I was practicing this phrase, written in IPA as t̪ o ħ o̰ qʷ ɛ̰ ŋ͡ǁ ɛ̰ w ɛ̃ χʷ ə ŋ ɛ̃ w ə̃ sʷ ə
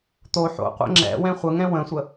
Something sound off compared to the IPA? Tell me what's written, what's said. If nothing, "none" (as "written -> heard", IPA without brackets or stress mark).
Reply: none